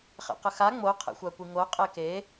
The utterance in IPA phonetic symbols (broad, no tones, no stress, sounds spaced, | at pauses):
χ ɛ̰ q ə x a ŋ͡m o qʰ ɛ̰ xʷ a kʷ i ŋ o qʼ e k e